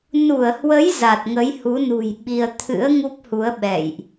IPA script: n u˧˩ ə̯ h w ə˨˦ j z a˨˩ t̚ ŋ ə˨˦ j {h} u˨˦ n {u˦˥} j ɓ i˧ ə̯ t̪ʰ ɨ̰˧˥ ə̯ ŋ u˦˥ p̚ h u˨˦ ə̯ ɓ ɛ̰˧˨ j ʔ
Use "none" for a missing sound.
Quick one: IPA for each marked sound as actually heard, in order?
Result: h, ṳ˨˩

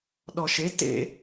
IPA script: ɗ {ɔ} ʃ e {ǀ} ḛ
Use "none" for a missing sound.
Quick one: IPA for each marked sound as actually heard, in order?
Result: ɔ, t

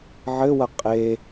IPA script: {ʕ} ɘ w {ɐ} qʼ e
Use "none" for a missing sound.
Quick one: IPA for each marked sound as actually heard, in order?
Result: ʕ, ɐ

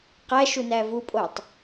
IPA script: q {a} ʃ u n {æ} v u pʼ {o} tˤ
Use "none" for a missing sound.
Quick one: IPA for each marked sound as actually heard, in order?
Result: æ, æ, o

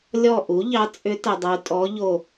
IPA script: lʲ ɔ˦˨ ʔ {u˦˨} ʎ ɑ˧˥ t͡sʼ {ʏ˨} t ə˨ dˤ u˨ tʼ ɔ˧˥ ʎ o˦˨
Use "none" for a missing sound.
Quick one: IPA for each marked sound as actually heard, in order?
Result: u˩˥, ʏ˧˥

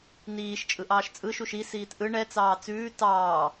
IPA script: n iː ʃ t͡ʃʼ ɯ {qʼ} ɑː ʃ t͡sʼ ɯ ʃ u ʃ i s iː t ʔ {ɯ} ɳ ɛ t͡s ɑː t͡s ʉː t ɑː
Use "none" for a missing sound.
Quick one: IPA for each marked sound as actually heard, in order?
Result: ʔ, ɯ

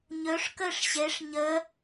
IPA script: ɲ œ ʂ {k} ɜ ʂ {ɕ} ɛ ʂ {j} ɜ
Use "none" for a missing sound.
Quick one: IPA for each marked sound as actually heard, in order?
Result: k, ɕ, ɲ

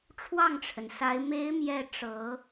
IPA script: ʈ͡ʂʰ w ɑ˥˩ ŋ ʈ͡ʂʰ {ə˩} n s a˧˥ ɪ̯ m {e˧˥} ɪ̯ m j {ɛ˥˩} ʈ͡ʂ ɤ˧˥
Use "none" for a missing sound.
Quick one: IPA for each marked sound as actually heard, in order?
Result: ə˩, e˧˥, ɛ˥˩

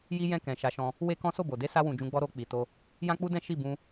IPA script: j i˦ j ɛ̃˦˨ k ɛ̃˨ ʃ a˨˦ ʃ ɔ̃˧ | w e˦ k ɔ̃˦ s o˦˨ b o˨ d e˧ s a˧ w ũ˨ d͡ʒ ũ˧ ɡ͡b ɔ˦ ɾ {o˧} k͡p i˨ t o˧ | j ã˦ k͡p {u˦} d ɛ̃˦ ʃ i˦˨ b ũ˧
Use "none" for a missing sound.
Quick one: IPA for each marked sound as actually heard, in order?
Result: o˧, u˦

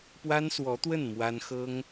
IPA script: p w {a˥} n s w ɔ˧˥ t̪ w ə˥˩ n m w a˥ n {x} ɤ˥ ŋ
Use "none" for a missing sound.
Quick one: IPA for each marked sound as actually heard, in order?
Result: a˥, x

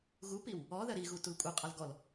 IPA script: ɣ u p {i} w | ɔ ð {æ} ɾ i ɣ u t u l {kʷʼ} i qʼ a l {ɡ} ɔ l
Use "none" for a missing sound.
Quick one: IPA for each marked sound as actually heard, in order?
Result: i, ɜ, kʷʼ, ɡ

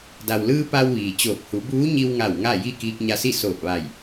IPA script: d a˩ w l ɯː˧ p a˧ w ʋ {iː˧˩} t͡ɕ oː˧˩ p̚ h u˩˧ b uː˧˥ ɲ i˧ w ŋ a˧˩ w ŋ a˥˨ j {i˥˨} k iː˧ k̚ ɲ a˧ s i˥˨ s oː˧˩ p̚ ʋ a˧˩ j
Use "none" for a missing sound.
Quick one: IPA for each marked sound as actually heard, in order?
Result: iː˩, i˥˨

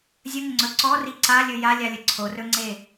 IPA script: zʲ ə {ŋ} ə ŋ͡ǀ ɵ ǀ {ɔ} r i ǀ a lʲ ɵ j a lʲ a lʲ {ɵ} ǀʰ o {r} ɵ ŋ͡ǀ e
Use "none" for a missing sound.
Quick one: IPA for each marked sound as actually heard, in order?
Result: ŋ, ɔ, ə, r

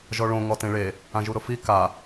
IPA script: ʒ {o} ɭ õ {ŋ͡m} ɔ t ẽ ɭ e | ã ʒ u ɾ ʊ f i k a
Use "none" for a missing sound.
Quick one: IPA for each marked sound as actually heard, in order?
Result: ɔ, ŋ

